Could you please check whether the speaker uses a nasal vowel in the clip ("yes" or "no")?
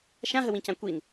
yes